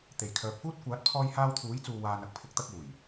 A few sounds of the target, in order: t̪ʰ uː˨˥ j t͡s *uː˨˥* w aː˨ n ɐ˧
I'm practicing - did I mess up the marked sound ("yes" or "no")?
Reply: yes